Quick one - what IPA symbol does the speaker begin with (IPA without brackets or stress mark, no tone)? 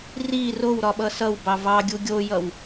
r